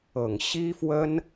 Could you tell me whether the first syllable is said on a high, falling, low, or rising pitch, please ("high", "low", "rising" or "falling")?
low